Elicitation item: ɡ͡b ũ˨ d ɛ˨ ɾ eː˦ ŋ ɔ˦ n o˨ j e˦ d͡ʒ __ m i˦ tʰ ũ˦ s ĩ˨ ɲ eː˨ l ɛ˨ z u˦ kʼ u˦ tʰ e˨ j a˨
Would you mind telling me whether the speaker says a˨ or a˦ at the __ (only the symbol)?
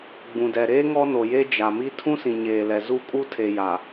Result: a˨